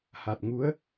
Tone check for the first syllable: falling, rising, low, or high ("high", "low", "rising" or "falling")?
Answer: low